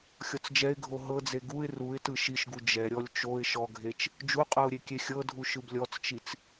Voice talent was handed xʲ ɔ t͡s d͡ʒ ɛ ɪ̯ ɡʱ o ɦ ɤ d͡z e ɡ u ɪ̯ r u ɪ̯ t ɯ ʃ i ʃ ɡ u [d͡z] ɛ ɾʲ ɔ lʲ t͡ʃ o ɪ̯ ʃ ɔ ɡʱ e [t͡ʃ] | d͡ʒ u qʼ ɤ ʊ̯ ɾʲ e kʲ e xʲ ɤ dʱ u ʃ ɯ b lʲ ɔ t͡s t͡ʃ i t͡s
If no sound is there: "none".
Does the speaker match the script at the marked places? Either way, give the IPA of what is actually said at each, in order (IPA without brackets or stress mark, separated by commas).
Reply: d͡ʒ, t͡ʃ